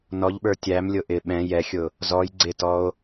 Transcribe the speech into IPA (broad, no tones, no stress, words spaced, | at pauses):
nɔʎɓə˞ tʲæmlʲʊ ʔɪ ɓɛ̃ jɛxʲʊ | zɔj ɡ͡ǀɪtɔo̯